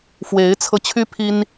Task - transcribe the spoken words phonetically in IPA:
fwe˧˥ɪ̯t͡sʰɤ˧ t͡ɕʰy˥pʰi˥n

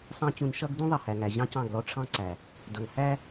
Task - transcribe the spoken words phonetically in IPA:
sˤɑ̃˦t͡ɕũ˧n ʃʌ˦ɡ dũ˦ðˤʌ˨hæ˨ŋæ˨ ʑɑ̃˦cɑ̃˦˨ɡlɔ˦ ʈ͡ʂʰɑ̃˦ǀæ˨ | dʌ˨ŋ hæ˦

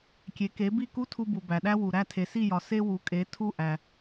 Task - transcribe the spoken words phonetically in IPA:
kʲe˩˥ke˩˥bi˥˩ ku˥tʰu˧bu˩ bæ˩ɗæ˥wu˩ ɾæ˥˩tʰe˩si˥˩jɒ˩ se˥ wu˩˥kʼe˩˥tʰu˥˩ ʔæ˩

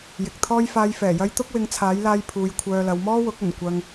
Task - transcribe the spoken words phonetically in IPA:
jɪ˨k̚t̪ʰɔː˥j faː˧jfɛː˨˩jɐ˥j t̪ʊ˥k̚wɪ˨˧ŋt͡sʰaː˨˥jlaː˧j pʰuː˨˧jkʷʰœː˧lɐ˨˧w mɔː˥wʊ˨˥k̚ɵ˨˩n kʷɐ˧ŋ

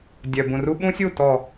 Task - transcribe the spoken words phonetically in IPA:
dʲœ˨bũ˨ru˦ ɓũ˦sʲu˦˨ tɔ˨

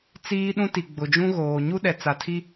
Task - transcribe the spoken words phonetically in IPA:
t͡siː˦ɗũ˦ti˨ ɡ͡bʊ˨d͡ʒũ˦ɣoː˨ ɲu˦ɗɛ˨t͡sa˨tʰi˦

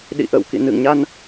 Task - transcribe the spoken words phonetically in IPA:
ɗḭ˧˨ʔə̰ː˧˨wkḭ˧˨ nɨ̰˧˨ŋɲa˧n

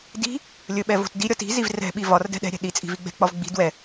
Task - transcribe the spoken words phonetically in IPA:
di̤ | lʲɵɓɛ vo̤tdiɾʲɒt i̤ziv rɛ̤ɓi vɒrdɛ̤ ɗɛ̤ɾʲɛ̤ ɗit͡sʼi̤ viɡ͡bɛ̤k͡pɒv ɡ͡bi̤ dwɛ

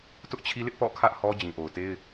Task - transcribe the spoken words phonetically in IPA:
tʊ˦ʔt͡ɕʰi˦lɪ˦ʔ pɔ̰˦˨kʰä˦ʔ hɔ˦ d͡ʑĩ˨ʔo˨ʊ̯te˦ɪ̯

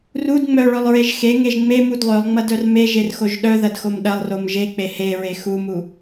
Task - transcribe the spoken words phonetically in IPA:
rud ŋ͡mœɭœlˠɹeʒ xeŋeʒ ŋ͡memud lˠœlˠŋ͡mɐdœr meʒerxoʒ ɗœðɐdxom ɗɐlˠrom ʒek͡pe heɹe xumu

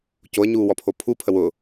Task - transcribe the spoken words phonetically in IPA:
coə̯ɲuːwɔpʰo pʰu pʰəwʊː

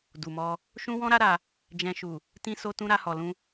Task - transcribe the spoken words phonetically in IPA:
du˨mɔ˧ | ʃũ˦wɔ̃˦ɾa˦ɾa˧ | d͡ʒɛ̃˨ʃu˨ | tĩ˧so˧ tũ˧ɾa˧hɔ˨lũ˧

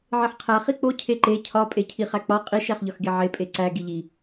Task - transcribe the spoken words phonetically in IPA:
ʕeħqʰæ χik͡po cʰeǃe cʰɒ pʼecʰiχæk͡pɒ qʼiʃ æχʎɒxɡeʕe pʼeǀæ ɡiʎi

